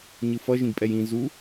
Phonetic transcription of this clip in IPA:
ɲɯfʌ ʒĩɡpʼɛjĩ zu

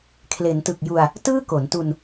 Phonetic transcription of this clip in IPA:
kʰle˩˦ntɯ˨˩k̚ ju˧a̯ | tɯː˥˩ko˩˦ntu˧n

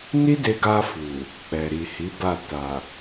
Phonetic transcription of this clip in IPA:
ni˦de˧ɡa˧fu˨ | k͡pɛ˨ɾi˨hi˨˦ba˦˨ ta˨

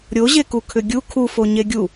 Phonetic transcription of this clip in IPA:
ɾʲoʑeku kʰʏɡʲu kʰufo ɲeɡʲu

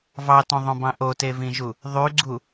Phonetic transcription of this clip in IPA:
vɑtõðˤõbɑ̃ ʔotevĩʒu | ðˤyɡ͡ǀu

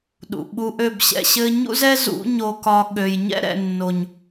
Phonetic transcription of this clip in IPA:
ɗṵ˨ ɓu˧ʔø˦˨bɕɛ̰˧ɕɘ˦ ɲṵ˦zɛ˦zṵ˨˦ ɲo˧kɒ˧ ɠø˨j ɲɛ̰˦ɾɛ̰˨nːo˨ɲ

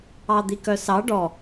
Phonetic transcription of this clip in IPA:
ɑd̪ikœsɑ ɖɔ

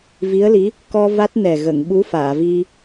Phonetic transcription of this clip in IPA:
vi˧˥ə̯li˧˥ | kɔ˧ va˦˥t̚nɛ˨˩ ɣə˨˩˨ŋ ɓu˧˥faː˨˩˨vi˧

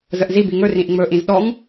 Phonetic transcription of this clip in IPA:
zəʔzi biŋɵ rĩʔŋ͡mɵ ʔĩzɗɔŋ

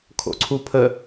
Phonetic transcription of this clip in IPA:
kʰo̰ǀʰupʰə

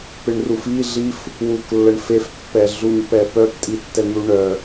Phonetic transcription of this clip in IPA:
pɪɳrufi ɮif | wuklːəɳ fefpːɛɮuɲ pɛpœptʼitːɛ n̪uɳœ

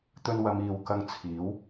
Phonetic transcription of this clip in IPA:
t̪ɵ˧nwɐ˨˧m iː˨wkɐ˧ŋt͡sʰiː˨˥w

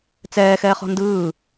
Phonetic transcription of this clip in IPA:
t͡sɛːxɛːχɔ̤ ndɯː

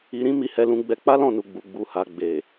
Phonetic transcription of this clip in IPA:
i˨ɾĩ˨˦ mi˧hɛ˧lũ˧ɡ͡bɛ˧ k͡pa˦lɔ̃˦˨nu˨ ɡ͡bu˨ɡ͡bu˨ha˨ ɡ͡be˨

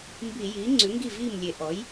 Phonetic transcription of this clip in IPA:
mbi˧˩˧jiː˩˥ ŋ͡ǀʉ˩˥ŋɡi˥˩viː˥˩m lʲe˧˩˧ʔɔ˩˥j

